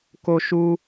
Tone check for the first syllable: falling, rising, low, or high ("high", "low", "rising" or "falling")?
high